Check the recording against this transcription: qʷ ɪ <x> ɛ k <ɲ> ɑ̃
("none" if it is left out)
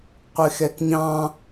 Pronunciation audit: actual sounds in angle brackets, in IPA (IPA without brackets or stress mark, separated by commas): x, ɲ